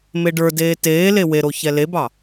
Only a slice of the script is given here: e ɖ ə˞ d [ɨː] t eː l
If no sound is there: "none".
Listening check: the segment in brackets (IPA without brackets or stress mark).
eː